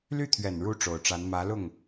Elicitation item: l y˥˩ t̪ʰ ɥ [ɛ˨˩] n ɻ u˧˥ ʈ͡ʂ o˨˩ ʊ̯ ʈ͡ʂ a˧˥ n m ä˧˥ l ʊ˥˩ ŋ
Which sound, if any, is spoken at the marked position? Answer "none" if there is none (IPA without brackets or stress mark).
ɛ˨˩